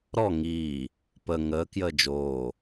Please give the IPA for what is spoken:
ɾɔ ŋiː | pə ŋəː kjəːd͡ʒoː

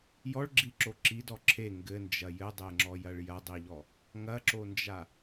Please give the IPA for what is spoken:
jɔɭɡ͡ǁiǁo ǁidɔ ǁʰe ŋɡɘnd͡ʒɐ jɘdˤeŋ͡ǁɔjɐɭ jɐdˤiʎɔ | ŋɐǁond͡ʒa

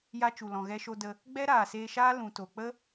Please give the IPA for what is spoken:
ja˧t͡ʃu˨ lɔ̃˨ɣɛ˧ʃo˧də˧ | ɡ͡bɛ˦ɾaː˨ seː˧ʃaː˦ lũ˨to˨k͡pə˦

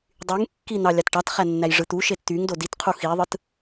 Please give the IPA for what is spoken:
dˤyŋkːi n̪ɑlʲɑtʈɑtχæ nːæjʐɯt̪uʃet t̪yŋ doditqʰu xiðˤɯt

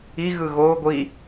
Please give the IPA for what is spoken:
iɣɯ ɣo ɡʷi

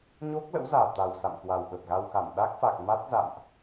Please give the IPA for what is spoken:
ɲo˦˥k̚lə̰˧˥wzaː˨˩ t̪a˨˩w sa̰˧˨mkwa˨˩wɓə˨˩p̚ɣa˧w xa˧˩m ɗa˦˥k̚fa˨˩k̚ ma˦˥t̚za̰˧˨mʔ

